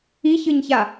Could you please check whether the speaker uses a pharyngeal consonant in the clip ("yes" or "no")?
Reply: no